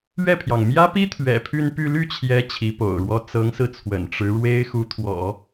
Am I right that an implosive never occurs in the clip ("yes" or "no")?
yes